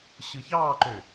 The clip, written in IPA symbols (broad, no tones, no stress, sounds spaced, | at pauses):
ɕ ɯ ç ɑː ǃ ø